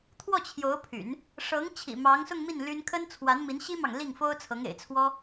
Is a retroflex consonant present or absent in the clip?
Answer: present